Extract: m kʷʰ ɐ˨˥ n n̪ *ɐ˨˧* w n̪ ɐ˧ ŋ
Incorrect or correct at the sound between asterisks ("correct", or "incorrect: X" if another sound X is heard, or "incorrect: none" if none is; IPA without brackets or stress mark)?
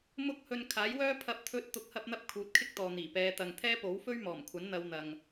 correct